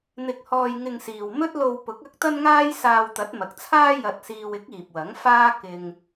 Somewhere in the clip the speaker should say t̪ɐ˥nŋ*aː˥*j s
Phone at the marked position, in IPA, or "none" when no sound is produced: aː˥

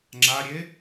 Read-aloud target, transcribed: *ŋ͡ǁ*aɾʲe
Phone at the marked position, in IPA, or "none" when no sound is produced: ŋ͡ǁ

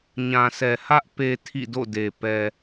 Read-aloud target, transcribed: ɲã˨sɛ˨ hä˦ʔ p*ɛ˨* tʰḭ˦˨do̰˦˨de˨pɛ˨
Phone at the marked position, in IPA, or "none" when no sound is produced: e˨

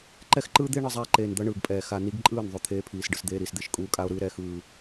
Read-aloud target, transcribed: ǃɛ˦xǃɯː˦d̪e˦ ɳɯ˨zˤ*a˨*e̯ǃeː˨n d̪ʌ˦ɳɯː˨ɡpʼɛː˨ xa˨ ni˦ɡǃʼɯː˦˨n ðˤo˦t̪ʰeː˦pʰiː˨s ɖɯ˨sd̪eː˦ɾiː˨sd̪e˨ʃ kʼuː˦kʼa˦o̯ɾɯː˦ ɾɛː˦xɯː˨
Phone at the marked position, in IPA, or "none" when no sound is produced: a˦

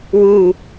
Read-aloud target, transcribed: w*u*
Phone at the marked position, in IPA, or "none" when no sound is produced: u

